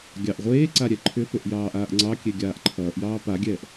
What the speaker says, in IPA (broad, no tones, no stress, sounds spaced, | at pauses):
ɡʲ ɑ ʔ ʁʷ eː ǀ a ɾʲ ɛ ǃʰ ʏ p ʏ ʔ j ɑː ʔ aː ʔ ŋ͡ǀ ɑ kʲ e ɡʲ aː ʔ ǃʰ ʌː ʔ j ɑː p a ɡʲ ɛː ʔ